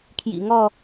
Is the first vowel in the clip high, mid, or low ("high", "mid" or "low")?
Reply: high